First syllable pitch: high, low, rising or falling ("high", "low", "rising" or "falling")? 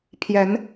rising